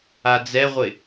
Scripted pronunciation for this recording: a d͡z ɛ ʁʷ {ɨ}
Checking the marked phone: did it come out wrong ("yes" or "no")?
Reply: yes